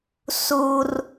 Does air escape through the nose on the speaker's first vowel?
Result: no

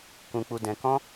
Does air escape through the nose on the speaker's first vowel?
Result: yes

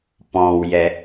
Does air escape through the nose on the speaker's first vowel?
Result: yes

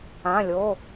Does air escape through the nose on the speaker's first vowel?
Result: yes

